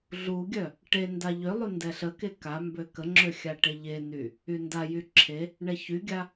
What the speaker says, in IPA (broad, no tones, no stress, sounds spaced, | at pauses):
ɮ u ɡʲ œ | ʈ e n d a ʎ ø lˠ y n d ɛ ɬ ə k e k a m b ø k ə ŋ͡ǁ ø xʲ a ʈ e ʎ e n y | y n d a j y ǁʰ e | ɳ ɛ ç y ɡʲ a